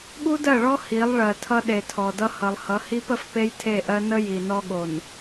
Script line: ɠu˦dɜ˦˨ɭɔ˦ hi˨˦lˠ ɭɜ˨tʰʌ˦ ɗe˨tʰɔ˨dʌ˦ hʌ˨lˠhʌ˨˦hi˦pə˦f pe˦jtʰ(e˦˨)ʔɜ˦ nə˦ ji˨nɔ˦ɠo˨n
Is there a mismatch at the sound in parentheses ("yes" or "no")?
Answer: no